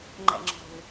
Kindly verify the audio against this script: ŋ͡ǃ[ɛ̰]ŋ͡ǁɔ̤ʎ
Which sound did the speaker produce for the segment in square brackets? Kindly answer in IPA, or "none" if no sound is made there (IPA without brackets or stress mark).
ɛ̰